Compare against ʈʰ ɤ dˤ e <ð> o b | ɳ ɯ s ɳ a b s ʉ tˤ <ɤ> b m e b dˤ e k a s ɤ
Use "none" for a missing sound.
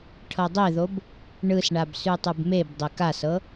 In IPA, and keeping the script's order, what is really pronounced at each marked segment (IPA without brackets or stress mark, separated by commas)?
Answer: ð, ɯ